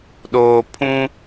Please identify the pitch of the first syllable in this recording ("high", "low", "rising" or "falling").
low